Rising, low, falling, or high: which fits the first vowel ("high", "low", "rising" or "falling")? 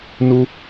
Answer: high